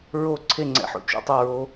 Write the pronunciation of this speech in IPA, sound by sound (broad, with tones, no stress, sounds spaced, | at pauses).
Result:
ɹ o˥˨ ǀʰ e˥˨ ŋ͡ǀ ɛ̰˦ ħ o̰˦ t͡ʃ ṵ˥˨ tˤ o˥˨ ɹ o˦